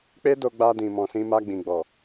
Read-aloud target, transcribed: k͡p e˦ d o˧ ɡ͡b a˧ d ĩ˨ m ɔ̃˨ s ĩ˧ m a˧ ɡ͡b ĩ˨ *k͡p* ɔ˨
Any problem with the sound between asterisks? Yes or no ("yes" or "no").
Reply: yes